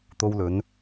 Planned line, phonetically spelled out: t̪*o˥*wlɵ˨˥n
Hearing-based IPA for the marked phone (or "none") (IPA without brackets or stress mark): o˥